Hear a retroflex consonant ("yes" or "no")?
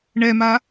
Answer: yes